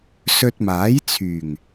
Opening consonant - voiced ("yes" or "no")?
no